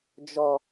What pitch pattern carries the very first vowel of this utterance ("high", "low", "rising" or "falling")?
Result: low